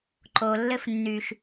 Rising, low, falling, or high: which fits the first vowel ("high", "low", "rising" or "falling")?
low